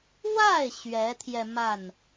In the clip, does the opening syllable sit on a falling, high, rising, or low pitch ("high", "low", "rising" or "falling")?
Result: falling